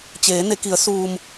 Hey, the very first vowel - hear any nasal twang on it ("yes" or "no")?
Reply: no